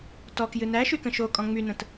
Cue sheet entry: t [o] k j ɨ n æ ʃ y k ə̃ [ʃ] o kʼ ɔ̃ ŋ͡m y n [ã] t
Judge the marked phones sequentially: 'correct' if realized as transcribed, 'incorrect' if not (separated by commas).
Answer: incorrect, correct, incorrect